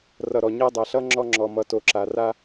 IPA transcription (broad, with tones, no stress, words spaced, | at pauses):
rʌ˨ɾɔ˨ɲa˦ dˤa˨ɬʌ˦ ŋ͡ǁɔ˦ ŋ͡ǁɔ˨mʌ˨ to˨ǁa˨ra˦